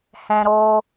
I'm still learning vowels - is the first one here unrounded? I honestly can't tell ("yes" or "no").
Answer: yes